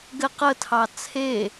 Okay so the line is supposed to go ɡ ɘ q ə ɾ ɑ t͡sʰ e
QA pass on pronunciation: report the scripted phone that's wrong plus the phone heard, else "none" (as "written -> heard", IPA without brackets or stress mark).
ɾ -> tʰ